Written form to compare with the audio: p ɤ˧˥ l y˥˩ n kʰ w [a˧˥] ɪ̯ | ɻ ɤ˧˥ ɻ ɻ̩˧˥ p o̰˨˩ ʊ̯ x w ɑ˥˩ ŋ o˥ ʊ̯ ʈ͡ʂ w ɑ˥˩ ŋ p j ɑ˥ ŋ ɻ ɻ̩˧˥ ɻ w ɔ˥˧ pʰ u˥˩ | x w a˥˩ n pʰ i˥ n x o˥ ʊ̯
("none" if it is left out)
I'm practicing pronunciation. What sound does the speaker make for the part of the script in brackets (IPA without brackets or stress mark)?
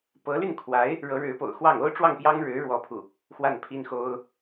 a˧˥